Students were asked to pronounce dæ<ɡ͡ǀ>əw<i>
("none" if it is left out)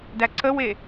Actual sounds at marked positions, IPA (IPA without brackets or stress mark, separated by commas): ǀ, e